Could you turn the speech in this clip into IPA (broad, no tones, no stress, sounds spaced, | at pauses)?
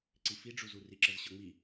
ǀ i f i ɖ͡ʐ u z u r i ǁ ə z ɕ ɤ ŋ͡m i